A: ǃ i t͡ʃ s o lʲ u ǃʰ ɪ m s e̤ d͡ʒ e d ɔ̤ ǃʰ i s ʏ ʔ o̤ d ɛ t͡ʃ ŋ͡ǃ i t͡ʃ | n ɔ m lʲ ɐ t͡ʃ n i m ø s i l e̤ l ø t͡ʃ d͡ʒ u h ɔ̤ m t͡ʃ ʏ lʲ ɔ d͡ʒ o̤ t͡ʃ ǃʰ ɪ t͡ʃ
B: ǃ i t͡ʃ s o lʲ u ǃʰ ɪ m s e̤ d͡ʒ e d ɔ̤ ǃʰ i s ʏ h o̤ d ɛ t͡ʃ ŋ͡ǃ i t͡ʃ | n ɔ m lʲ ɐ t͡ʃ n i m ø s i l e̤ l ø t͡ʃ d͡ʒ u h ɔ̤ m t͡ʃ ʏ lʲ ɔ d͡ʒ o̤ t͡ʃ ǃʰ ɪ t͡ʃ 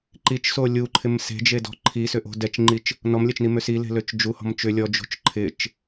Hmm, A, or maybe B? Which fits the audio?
A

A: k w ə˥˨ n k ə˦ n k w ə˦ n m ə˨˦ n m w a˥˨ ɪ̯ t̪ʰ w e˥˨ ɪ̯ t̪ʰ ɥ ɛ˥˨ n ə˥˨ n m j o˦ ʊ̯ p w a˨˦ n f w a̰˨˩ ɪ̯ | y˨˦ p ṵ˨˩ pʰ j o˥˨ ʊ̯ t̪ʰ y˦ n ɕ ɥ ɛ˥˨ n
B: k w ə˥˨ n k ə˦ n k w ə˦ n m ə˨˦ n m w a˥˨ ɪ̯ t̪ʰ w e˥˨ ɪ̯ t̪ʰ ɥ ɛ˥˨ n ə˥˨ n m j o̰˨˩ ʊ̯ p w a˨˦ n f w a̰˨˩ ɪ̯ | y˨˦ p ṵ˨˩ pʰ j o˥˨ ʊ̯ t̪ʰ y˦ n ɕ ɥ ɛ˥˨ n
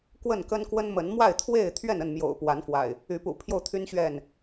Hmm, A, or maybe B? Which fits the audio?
B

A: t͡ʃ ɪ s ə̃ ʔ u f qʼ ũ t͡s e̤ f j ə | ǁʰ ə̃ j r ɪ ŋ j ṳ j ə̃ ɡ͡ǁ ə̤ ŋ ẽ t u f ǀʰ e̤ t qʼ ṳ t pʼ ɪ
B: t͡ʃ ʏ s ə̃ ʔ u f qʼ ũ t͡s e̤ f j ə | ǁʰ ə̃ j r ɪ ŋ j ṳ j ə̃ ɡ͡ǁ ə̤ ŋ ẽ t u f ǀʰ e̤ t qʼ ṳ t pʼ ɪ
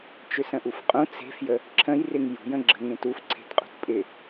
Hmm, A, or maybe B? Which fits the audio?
B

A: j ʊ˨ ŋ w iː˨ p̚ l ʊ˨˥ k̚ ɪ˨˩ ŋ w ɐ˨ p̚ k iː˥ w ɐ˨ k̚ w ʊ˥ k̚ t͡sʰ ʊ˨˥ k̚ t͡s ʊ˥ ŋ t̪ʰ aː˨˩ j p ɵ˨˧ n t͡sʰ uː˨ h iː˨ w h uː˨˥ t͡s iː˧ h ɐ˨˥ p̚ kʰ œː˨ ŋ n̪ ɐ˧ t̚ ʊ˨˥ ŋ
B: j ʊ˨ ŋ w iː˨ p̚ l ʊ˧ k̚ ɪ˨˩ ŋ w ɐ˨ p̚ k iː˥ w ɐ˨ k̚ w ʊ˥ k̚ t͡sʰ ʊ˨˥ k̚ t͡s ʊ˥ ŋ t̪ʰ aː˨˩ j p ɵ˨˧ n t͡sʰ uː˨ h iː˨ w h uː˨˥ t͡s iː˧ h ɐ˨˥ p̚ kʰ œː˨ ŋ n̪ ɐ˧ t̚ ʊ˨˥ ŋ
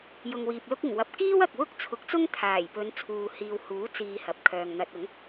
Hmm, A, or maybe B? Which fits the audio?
B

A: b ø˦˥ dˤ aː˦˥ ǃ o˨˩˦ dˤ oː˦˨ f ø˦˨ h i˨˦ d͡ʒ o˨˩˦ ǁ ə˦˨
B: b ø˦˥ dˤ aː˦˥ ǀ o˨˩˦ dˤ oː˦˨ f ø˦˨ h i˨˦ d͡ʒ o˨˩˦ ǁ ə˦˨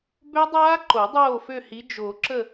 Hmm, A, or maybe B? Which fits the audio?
A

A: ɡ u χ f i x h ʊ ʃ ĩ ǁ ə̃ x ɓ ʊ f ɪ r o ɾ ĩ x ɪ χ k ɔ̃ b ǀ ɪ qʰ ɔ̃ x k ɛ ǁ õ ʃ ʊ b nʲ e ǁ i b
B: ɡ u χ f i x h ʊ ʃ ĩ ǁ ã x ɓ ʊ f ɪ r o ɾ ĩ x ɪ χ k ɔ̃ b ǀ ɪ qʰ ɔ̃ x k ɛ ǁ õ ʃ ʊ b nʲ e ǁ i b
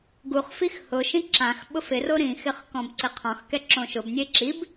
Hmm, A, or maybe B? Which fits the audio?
B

